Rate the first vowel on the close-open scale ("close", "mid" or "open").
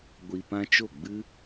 close